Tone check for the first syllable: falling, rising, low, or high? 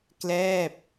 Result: falling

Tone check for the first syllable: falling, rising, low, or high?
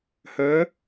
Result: rising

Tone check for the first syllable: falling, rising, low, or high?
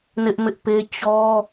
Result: high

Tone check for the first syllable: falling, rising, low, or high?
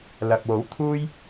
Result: low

